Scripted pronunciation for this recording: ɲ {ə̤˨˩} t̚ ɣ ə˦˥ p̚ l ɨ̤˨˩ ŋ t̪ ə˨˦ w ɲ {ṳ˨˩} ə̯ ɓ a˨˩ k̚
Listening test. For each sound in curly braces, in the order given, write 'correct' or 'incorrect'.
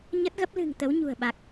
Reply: incorrect: ə˦˥, correct

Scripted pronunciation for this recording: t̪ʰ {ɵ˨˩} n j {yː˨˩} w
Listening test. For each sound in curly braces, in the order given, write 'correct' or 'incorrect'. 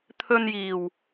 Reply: incorrect: ɵ˧, incorrect: iː˨˩

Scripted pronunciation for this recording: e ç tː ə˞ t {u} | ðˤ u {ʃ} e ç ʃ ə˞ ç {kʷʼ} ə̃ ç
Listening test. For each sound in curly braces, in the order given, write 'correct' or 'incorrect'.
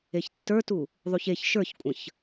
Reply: correct, incorrect: ç, correct

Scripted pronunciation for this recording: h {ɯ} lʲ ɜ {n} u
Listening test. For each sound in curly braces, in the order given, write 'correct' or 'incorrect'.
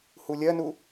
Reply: incorrect: u, correct

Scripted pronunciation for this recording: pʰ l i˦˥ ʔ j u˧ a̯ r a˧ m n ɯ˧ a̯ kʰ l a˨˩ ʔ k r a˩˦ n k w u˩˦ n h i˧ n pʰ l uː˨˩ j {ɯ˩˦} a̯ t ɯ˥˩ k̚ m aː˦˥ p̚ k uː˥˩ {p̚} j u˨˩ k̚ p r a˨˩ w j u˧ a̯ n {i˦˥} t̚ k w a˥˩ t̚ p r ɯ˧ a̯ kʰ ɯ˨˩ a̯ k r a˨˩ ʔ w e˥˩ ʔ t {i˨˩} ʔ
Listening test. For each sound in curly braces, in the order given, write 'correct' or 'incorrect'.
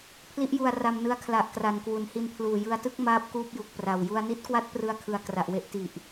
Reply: incorrect: ɯ˧, correct, correct, correct

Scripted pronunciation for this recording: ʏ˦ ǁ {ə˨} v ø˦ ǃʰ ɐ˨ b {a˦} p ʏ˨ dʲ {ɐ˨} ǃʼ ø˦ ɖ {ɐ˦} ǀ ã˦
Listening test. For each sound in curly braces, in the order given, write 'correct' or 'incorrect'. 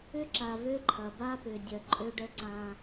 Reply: incorrect: a˨, correct, correct, incorrect: ə˦

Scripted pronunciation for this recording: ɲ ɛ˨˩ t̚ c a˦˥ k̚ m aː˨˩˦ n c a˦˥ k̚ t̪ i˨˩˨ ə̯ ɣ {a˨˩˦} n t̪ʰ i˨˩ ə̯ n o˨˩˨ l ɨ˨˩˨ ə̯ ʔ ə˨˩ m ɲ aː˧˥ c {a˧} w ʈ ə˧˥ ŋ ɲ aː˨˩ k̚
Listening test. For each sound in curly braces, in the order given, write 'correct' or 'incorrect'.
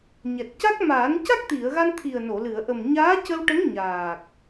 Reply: incorrect: a˧, incorrect: ə˧

